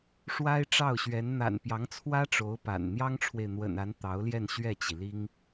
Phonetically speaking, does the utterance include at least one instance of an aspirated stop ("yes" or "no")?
yes